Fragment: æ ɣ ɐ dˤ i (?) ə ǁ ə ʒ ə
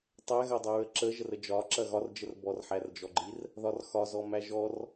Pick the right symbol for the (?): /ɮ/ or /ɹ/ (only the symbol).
ɹ